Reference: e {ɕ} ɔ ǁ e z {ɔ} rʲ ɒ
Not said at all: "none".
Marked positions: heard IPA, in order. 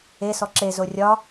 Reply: s, o

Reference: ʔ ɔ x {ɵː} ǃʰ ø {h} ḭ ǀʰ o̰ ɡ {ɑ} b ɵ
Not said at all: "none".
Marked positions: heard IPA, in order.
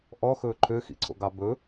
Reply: ɵː, x, ɑ

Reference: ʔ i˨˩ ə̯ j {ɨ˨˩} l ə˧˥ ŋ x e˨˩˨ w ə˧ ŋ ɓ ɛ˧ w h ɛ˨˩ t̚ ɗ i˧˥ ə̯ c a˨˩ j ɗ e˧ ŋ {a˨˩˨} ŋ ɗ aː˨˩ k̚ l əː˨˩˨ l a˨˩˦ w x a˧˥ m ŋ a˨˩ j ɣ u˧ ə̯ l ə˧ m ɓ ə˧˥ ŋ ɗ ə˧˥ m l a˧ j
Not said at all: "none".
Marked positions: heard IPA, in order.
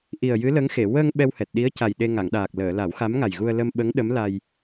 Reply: ɨ˧˥, a˨˩˨

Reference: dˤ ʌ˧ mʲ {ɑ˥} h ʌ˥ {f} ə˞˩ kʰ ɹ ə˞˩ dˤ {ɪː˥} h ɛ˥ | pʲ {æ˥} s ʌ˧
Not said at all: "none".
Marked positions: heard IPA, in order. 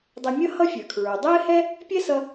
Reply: ʌ˥, fʲ, ɪː˥, ɛ˥

